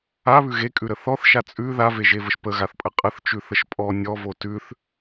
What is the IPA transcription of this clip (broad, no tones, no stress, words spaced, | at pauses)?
aβʉ ɣekʼʉɾə θɔθʃa t͡sʼʉ ðaveʒevəʃ pəɣaθpʼə qʼəθt͡ʃʉθəʃ pʼɔ nʲɔvo tʉθ